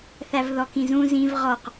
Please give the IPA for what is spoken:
θævðɔkĩzũ zĩv ʁɔq

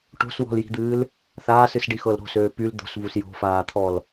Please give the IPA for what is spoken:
ʈo̤swɔ̤lji̤d̪ɨːl | θaːsɨsɖixɤl ɾo̤søː pyl d̪o̤svus jo̤faːt̪ʰɔl

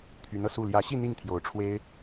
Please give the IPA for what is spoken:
t̪ʰy˧˥nɤ˧su˥˩ ljä˧˥ɕi˥˧ n̪i˥˩ŋ t̪ʰjo˧˥ʊ̯ ʈ͡ʂʰwe˥ɪ̯

